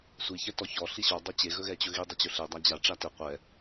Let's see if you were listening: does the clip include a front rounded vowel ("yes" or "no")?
no